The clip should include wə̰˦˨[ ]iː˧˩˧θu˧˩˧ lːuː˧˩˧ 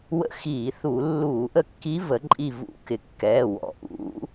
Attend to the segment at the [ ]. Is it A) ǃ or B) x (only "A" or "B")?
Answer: B